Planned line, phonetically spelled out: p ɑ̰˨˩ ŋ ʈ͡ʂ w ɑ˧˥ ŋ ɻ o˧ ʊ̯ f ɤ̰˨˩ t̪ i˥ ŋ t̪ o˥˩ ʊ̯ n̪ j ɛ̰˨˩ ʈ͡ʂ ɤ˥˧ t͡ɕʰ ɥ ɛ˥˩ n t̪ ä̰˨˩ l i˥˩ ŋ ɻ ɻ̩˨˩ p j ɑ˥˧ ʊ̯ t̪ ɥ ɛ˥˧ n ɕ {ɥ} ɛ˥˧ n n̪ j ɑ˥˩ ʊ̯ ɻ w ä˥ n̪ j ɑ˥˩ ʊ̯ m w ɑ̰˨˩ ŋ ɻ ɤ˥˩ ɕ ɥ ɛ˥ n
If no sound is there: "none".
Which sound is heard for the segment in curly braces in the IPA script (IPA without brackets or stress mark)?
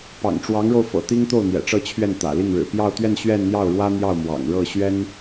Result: ɥ